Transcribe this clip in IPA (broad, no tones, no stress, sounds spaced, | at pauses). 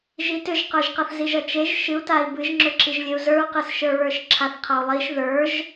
ʒ i t ʏ ʒ q ə˞ ʒ q ʌ θ z i ʒ ʌ t͡ʃ e ʒ ʃ ɨ u̯ t a i̯ b ɨ ʒ ŋ͡ǁ ʏ ǁ i ʒ lʲ e u̯ z ə˞ u̯ q ɨ s ʃ ə˞ ɹ ə˞ ʃ ǁʰ a θ qʰ ʌ u̯ lˠ i ʃ ð ə˞ ʒ